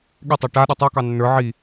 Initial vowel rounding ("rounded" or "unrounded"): unrounded